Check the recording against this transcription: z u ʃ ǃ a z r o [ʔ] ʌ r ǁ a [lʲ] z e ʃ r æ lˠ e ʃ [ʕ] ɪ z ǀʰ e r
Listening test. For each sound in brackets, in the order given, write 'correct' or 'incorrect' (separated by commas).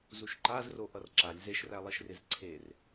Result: correct, correct, incorrect